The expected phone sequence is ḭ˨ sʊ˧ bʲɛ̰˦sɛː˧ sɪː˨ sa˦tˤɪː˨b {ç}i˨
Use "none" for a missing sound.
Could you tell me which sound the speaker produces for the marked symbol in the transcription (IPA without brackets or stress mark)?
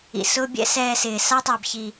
ç